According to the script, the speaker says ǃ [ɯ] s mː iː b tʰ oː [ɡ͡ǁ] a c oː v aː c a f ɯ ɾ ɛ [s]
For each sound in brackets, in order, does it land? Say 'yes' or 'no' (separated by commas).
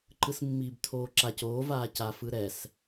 yes, no, yes